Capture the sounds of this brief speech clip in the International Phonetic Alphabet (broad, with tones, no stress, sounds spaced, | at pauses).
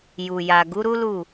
j u˨ j a˨ ɡ u˨˦ ɾ u˦ l u˦˨